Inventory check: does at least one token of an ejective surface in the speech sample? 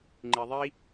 no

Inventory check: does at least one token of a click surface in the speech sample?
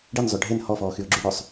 yes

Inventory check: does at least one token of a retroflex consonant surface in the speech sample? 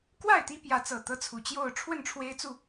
yes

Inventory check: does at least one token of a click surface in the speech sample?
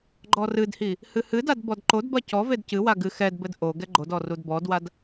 yes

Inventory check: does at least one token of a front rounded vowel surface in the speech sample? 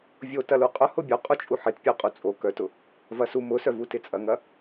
yes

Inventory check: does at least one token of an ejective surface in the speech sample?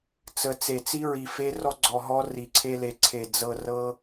no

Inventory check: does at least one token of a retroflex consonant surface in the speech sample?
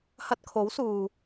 no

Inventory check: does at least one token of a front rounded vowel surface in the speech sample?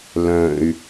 yes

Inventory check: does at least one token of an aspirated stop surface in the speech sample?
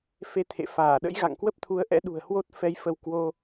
yes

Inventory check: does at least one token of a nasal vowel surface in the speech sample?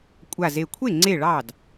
no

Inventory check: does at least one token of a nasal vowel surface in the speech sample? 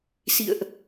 no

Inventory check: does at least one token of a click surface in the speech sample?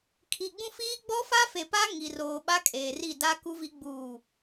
no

